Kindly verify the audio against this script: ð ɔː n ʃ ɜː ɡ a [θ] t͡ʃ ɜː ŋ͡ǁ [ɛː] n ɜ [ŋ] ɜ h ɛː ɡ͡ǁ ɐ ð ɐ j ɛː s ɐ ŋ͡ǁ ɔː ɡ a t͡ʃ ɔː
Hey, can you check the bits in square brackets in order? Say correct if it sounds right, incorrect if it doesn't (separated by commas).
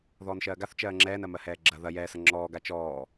correct, correct, incorrect